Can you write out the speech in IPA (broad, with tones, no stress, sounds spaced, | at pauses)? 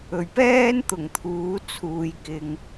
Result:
ɵ˨˩ ɥ p ɛː˥ n t̪ ʊ˨˩ ŋ t̪ʰ uː˨˥ t͡sʰ uː˨ j k ɪ˨ ŋ